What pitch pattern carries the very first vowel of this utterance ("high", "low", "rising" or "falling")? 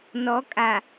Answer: rising